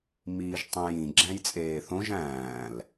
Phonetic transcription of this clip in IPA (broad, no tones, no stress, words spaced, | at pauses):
miːʒtˤĩjĩ ɡ͡ǁæ̃jt͡sʼeːθõʒ æ̃ːl